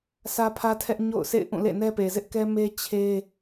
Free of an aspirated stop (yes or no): no